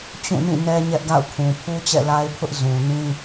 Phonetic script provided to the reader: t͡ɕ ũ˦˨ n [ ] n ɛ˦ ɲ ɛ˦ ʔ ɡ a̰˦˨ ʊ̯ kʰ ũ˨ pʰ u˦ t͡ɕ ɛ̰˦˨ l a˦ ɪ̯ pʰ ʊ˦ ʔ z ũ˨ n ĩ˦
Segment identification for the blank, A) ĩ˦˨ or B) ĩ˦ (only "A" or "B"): A